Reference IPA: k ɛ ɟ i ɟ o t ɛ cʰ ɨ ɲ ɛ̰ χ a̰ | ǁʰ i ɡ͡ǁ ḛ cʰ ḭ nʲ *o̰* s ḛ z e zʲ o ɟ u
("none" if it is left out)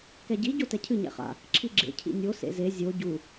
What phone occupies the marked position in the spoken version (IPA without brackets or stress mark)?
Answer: o